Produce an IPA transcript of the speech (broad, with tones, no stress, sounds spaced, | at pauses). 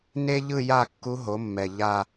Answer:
n e˥ ʎ ɯ˥˧ j a˥˧ kː u˧˥ ɦ o˩˥ mː ɛ˨˩ ʎ a˥˧